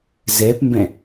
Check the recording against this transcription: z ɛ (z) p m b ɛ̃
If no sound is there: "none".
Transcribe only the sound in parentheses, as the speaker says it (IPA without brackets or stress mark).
none